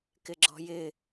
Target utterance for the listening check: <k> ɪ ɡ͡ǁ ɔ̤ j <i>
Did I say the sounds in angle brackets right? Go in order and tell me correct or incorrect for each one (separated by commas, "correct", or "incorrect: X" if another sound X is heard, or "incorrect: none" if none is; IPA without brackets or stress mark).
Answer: correct, incorrect: ɪ